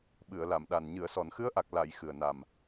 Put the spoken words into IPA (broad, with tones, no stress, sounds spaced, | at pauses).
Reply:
ɓ ɨ˨˩˨ ə̯ l a˨˩˨ m ɗ a˨˩ n ɲ ɨ˨˩˨ ə̯ s ɔ˨˩˨ n x ɨ˧˥ ə̯ ʔ a˨˩ k̚ l a˨˩˨ j x ɨ˨˩ ə̯ n a˨˩ m